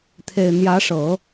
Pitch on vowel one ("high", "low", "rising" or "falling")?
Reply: low